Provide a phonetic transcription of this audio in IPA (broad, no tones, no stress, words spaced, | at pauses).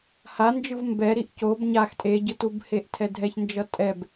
hand͡ʒɯv mbɛ ɾiʔcob ɲax tʼeɟɯtubheʔ tʰɛdʱɛçnd͡ʒʌ tʼɛb